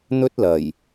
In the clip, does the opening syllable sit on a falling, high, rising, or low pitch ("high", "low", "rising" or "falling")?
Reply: high